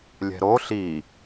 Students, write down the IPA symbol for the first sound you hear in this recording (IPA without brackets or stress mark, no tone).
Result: lʲ